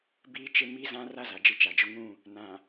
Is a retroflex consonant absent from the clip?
yes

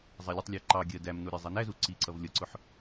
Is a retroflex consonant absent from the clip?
yes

